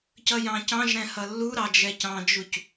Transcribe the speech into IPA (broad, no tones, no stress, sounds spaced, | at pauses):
c ʌ j ɑ̃ c ɑ̃ ʒ ɾ ɛ̃ h ʌ lː u ɾ ɑ d͡ʒ ɛ c ɑ̃ d͡ʒ u c